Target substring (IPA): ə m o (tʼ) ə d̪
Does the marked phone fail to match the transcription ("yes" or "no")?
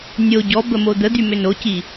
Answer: yes